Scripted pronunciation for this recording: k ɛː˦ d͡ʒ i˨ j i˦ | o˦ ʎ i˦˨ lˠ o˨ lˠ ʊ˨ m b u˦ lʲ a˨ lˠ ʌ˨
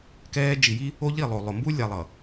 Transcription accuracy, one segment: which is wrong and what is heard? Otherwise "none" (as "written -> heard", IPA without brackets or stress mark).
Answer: none